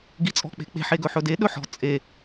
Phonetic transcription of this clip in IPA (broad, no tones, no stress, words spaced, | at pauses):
ɡit͡sʼɔ̤k͡pe̤k͡pe̤ħ eɡɵħɵde ɗɵħɔ̤ t͡sʼe